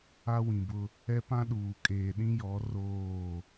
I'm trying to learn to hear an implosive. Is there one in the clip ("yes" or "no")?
yes